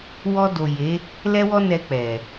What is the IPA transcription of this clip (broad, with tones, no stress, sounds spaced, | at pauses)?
w ɔ˧ d o˨ j e˨˦ | l ɛ˧ w ɔ˧ n ɛ˧ k͡p ɛ˨